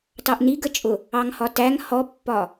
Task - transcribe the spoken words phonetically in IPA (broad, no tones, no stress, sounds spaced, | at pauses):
t ɑ ʔ n i ɡ ə t͡ʃʼ ʊ | ɑ ŋ h ɒ t æ ŋ h ɔ pː ɒ